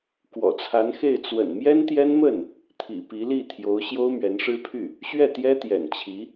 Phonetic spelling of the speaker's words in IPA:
kwɔ̰˨˩t͡sʰa˧˥nxe˥˩ɪ̯ t͡swə̰˨˩nmjɛ˥nt̪jɛ˥nmə˥˩n | t̪ʰḭ˨˩pi˧˥li˥˩ t̪ʰjo˧˥ʊ̯ ɕjo˥ʊ̯mɥɛ˧˥nʂɻ̩˥pʰy˥˩ | ɕɥɛ˥˩t̪jɛ˥t̪jɛ̰˨˩nt͡ɕʰi˧˥

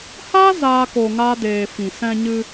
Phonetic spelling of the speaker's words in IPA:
ha˦ zaː˦ ko˧ŋa˦ deː˧ fĩ˨sɛ̃˧ɲɨ˧

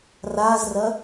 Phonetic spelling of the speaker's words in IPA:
razrɐ

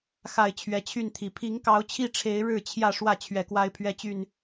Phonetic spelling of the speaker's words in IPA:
xa˨˩ɪ̯ t͡ɕʰɥɛ˨˦t͡ɕʰy˥˨nt̪ʰi˨˩ pʰi˨˦ŋkɑ˨˦ʊ̯t͡ɕʰi˥˨ ʈ͡ʂʰe˨˦ɪ̯ ɻɻ̩˥˨t͡ɕʰjä˥˨ ʂwä˥˨ t͡ɕʰɥɛ˨˦kwa˦ɪ̯pʰɥɛ˦t͡ɕy˥˨n

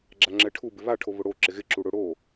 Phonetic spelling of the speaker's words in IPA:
ɡ͡ǁaŋ͡ǁɛʈʰu bɪβaʈʰo βʊɽo ǁɪɣɪ ǁuɽʊ ɽo

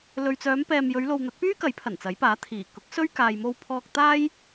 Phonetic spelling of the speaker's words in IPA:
lɵ˨ɥt͡sœː˨˧mpɛː˨m jɵ˨˧ɥlo˨w n̪ɐ˨˥t̚pyː˥kɐ˨˥j pʰɐ˨˩nt͡sɐ˨˥jpaː˨˥t̪ʰiː˨˩ kʊ˨˥k̚ sɵ˥ɥ kaː˨j mo˥wpʰɔː˥k̚ t̪aː˥j

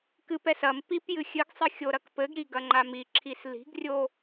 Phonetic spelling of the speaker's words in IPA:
kɨpɛs ɐm pipjɨ xʲɨɡsˤɨ xʲoɾɐkpɘɡɾi ɡɐŋ͡ǃamiǁʰis li̤ɡrʲo

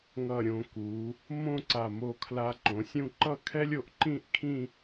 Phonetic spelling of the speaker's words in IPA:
ŋʌ˧˩ɾʲõ˩˧ku˩˧ | mõ˥˧ǀa˧˩mo˧kʰla˧ ǃõ˩˧sʲũ˥˧ ǃʌ˥˧kʰɛ˥lʲo˧ʔ ǃĩ˥˧ʔkʰĩ˥˧

